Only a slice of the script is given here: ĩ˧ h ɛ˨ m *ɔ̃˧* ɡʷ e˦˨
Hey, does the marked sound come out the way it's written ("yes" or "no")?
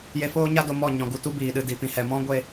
no